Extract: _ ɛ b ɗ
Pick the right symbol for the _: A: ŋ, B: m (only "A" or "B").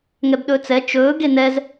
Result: A